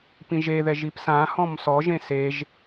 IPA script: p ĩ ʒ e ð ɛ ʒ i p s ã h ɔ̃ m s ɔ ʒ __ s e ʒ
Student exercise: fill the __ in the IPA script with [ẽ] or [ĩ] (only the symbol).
ẽ